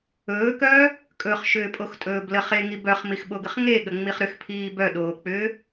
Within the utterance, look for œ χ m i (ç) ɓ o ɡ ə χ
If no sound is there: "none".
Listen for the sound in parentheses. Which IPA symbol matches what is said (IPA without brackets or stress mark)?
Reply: x